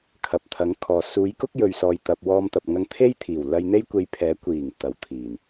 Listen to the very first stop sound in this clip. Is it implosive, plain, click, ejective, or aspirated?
aspirated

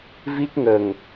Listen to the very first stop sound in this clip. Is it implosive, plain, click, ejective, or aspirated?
plain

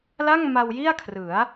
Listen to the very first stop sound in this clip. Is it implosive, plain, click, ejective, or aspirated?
aspirated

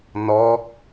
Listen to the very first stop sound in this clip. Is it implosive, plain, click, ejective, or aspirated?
plain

